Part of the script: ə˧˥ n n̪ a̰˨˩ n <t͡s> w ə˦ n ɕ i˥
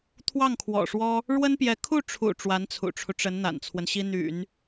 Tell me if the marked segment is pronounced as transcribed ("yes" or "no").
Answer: no